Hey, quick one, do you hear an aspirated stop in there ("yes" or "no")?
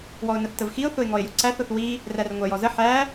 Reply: no